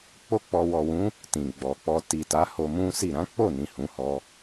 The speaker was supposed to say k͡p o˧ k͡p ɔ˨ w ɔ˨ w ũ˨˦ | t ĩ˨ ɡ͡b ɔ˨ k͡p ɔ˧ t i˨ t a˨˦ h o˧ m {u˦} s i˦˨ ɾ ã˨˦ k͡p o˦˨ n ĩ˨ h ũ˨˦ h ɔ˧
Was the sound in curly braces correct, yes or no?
no